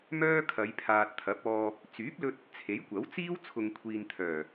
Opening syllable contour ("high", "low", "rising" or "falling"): high